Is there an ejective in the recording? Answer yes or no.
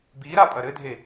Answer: yes